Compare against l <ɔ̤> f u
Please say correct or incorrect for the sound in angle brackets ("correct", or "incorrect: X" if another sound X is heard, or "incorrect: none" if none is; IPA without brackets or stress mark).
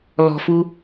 correct